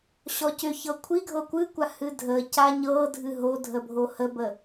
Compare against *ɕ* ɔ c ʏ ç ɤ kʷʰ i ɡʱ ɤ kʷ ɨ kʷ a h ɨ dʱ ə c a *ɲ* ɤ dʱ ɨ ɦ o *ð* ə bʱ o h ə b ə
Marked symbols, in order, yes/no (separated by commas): yes, yes, no